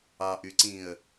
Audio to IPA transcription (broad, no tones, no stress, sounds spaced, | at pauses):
ɑ ʔ y ǀ ĩ ə̯